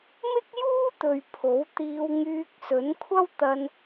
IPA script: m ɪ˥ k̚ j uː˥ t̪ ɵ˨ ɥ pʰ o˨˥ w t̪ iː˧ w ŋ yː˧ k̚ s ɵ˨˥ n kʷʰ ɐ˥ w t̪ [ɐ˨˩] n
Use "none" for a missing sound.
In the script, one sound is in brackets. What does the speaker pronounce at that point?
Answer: ɐ˧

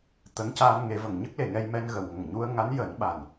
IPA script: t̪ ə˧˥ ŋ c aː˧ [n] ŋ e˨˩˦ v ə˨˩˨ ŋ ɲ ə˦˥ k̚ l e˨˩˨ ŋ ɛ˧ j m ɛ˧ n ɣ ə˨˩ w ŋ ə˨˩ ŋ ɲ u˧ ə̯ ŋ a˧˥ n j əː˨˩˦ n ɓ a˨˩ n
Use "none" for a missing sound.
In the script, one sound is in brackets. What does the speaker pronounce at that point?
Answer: n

